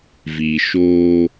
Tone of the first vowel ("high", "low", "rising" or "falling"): low